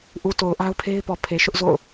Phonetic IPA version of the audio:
ʔ u˨ t o˨ ʊ̯ ʔ a˦ ʊ̯ pʰ e˦ ɪ̯ p ɔ˨ pʰ e˨ ʃ ʊ˦ ʔ z o̰˦˨ ʊ̯

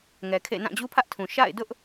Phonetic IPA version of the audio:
ŋ ɛ˨ kʰ ḛ˦˨ n ã˦˨ d͡ʑ u˦ pʰ ä˦ ʔ tʰ ũ˨ ʃ a̰˦˨ ɪ̯ d ʊ˦ ʔ

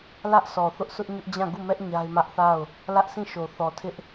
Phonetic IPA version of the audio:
l ä˦ ʔ s ɔ˨ θ ʊ˦ ʔ s ʊ˦ ʔ ɲ ʊ˦ ʔ d͡ʑ ã˦˨ ɡ u˦˨ m ɛ˦ ʔ ɲ a˦ ɪ̯ m ä˦ ʔ θ a˦˨ ʊ̯ | l ä˦ ʔ s ĩ˦˨ ʃ o˨ θ ɔ˨ tʰ ɪ˦ ʔ

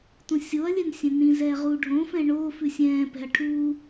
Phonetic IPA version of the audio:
t ũ sʲ o ɐ̯ lʲ ɛ n sʲ ɛ̃ n ĩ z ɛː ʁ uː ɖʱ õ f ɛ̃ ɳ o f ʉ sʲ ɛ̃ː p ɛ̤ ɐ̯ ʈʰ uː

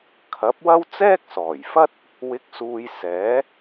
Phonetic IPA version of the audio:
kʰ ɐ˨˥ p̚ w ɐ˥ w t͡s ɛː˥ k̚ s ɔː˨˩ j f ɐ˥ t̚ | w ɪ˨˥ k̚ s uː˨ j s ɛː˨˥

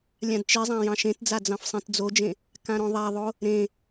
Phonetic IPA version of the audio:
lʲ ã d t͡ʃ i zˤ ã j ɑ̃ ʃ ẽ t d͡z a d͡z ɑ̃ f sˤ ĩ t d͡z o d͡ʒ ẽ | k ã ɾ õ ðˤ a ðˤ o | ɾ ẽ

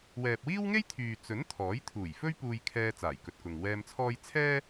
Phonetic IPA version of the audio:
w ɛː˨ p̚ w iː˥ w ŋ e˥ j t̪ʰ yː˨ t͡s ɵ˨˥ n t̪ʰ ɔː˨˥ j t̪ʰ uː˨˩ j f ɵ˥ ɥ p uː˧ j kʰ ɛː˧ t͡s aː˨˩ j k ɵ˨ t̚ k ʊ˨ ŋ w ɛː˧ m t͡sʰ ɔː˥ j t͡sʰ ɛː˥

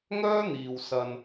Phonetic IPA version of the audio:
ŋ œː˥ n̪ iː˨ w s ɐ˧ n

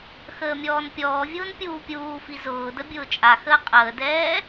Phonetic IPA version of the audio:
x əː mʲ ɔː n pʲ ɔː vʲ ʊː n pʲ uː pʲ uː f i z ʊː d ə bʲ ʊː t͡ʃʼ a x əː qʼ əː d ɛː

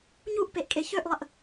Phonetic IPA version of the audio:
ɲ u ʔ p e ʔ kʼ e ç ø ʔ lˠ ə ʔ

